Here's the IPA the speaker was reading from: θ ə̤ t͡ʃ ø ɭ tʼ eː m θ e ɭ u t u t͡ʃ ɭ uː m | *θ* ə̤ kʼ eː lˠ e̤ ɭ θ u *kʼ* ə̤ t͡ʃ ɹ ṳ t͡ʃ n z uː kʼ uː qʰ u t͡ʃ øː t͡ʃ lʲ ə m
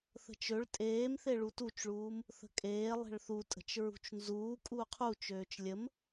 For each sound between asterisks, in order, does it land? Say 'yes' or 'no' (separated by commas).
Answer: yes, no